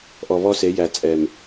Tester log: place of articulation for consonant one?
glottal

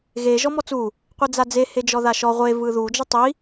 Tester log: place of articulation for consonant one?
velar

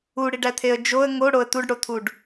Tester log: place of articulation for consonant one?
retroflex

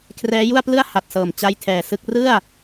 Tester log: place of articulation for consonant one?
velar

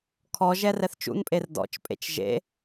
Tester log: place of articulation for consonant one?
velar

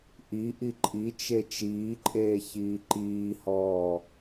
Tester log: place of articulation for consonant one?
glottal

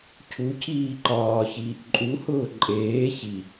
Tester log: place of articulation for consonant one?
palatal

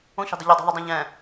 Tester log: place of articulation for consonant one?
palatal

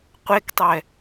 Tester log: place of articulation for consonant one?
uvular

